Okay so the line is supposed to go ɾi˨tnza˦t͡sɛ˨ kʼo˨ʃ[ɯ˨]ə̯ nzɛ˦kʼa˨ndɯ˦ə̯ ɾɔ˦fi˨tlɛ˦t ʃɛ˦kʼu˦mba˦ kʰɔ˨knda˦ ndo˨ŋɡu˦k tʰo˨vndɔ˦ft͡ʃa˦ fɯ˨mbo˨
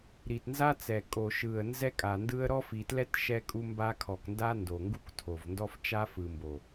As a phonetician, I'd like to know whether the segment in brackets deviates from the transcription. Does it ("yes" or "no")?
no